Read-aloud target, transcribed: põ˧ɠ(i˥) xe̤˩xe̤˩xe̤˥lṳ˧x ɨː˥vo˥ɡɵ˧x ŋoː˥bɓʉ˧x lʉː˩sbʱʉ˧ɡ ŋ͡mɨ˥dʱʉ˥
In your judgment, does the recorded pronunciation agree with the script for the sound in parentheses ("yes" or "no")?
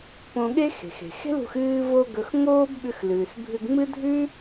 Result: no